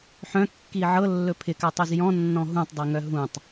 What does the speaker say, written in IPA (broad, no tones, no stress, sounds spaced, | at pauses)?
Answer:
ħ œ̃ kː i ʕ ɤ lː ɵ pʰ ɪ k a tˤ œ z j ɔ̃ nː ɔ̃ ɦ ũ tˤ dˤ i ŋ œ ɦ ũ tˤ